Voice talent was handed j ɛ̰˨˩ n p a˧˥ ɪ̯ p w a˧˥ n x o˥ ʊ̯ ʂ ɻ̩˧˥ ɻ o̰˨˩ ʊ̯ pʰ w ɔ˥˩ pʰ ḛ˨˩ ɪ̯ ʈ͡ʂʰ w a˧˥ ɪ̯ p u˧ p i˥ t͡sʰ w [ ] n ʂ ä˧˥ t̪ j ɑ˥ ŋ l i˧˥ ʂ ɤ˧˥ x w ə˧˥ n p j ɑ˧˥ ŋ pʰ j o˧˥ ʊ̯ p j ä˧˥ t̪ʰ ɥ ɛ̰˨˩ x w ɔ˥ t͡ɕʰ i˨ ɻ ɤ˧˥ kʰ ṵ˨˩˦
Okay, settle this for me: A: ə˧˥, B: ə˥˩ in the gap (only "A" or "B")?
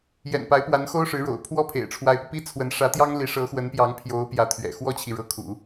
A